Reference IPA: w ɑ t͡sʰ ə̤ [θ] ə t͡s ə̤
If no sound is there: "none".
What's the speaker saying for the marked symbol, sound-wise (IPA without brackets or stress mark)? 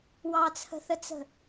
θ